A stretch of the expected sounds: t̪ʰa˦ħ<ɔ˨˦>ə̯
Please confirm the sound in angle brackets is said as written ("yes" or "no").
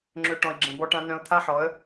yes